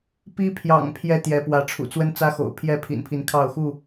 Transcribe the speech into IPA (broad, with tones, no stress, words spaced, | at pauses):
pi˦pʰjɑ̰˨˩ŋ pʰjɛ˦t̪jɛ˨˦pwä˨˦ʈ͡ʂʰṵ˨˩ t͡swə˦nt͡sä˦xo̰˨˩ʊ̯ pʰjɛ˥˨pʰḭ˨˩npʰi˨˦n kʰɑ˥˨ʊ̯xu˥˨